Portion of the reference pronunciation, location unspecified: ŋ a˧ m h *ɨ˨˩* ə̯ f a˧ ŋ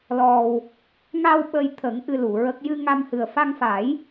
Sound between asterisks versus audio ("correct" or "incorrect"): correct